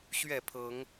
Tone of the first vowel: falling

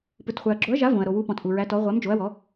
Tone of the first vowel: low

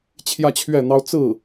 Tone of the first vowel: falling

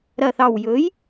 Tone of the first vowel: low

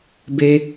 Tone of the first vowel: high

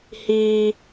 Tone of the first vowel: high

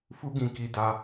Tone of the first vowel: high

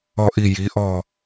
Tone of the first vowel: falling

